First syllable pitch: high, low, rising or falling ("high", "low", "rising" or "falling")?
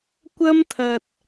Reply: high